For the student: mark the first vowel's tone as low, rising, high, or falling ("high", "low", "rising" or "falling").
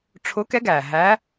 rising